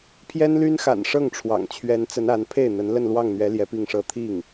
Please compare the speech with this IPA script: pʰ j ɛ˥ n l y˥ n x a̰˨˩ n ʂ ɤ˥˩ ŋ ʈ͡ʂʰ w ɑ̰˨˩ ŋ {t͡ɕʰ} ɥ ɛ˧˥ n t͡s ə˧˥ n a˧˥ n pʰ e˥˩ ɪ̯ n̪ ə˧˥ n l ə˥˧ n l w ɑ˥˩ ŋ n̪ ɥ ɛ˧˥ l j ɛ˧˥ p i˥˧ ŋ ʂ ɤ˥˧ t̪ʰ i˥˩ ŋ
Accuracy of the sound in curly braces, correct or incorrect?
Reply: correct